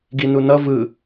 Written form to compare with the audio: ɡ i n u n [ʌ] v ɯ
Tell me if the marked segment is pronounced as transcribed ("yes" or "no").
yes